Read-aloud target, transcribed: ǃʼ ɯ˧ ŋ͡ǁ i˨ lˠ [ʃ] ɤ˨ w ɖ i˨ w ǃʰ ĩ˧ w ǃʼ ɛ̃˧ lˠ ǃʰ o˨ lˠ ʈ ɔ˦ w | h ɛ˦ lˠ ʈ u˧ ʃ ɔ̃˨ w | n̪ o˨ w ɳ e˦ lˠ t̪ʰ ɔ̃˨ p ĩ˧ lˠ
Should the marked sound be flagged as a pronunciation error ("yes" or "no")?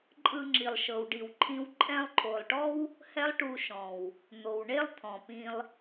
no